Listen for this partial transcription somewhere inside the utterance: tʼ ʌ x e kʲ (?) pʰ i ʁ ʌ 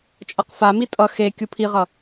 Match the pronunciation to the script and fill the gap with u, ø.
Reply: u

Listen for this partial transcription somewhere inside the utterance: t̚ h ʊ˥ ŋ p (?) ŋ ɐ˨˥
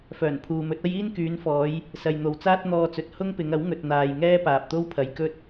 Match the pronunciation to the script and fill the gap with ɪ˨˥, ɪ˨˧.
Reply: ɪ˨˧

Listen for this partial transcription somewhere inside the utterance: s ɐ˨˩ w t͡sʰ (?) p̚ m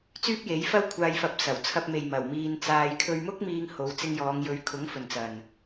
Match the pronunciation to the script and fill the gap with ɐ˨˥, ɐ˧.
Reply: ɐ˧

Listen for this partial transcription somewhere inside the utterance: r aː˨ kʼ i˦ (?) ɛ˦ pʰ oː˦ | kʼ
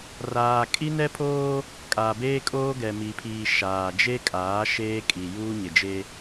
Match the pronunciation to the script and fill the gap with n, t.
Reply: n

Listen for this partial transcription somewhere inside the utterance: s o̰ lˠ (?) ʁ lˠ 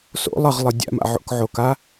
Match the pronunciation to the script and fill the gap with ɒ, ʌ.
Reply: ʌ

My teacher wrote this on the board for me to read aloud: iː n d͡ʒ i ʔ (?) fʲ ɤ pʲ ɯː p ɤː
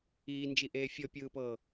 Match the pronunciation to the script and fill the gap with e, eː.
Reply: eː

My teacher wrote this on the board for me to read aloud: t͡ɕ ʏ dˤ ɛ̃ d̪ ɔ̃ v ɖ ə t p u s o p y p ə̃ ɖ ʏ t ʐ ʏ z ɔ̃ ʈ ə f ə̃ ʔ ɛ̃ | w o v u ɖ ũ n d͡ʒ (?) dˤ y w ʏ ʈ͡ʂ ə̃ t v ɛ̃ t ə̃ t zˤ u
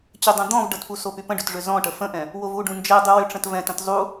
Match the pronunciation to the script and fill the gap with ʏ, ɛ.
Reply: ɛ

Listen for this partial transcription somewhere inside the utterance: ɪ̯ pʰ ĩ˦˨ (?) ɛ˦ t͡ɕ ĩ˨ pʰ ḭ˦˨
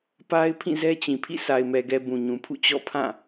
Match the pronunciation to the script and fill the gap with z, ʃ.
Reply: z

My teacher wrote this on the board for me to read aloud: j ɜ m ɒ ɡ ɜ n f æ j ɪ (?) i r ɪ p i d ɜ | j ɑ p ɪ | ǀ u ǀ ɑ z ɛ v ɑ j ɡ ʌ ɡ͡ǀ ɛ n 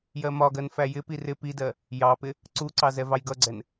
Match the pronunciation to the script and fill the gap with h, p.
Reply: p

